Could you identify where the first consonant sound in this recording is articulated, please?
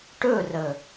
retroflex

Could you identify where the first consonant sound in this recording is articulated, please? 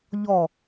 palatal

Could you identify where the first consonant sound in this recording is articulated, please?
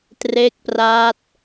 alveolar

